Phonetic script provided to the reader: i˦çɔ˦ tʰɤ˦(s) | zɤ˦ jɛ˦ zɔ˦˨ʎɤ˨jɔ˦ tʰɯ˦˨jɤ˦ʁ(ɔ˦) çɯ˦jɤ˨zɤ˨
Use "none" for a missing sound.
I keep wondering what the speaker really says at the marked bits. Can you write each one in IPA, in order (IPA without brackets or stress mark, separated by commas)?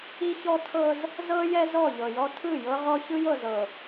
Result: z, ɔ˦